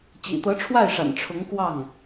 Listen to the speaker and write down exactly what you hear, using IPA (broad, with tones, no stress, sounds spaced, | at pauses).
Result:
t͡ɕ ḭ˨˩ t̪ ɤ˧˥ ʈ͡ʂʰ w a˥˩ ɪ̯ ʂ a̰˨˩ n ʈ͡ʂʰ ʊ˧˥ ŋ k w ɑ˥˩ ŋ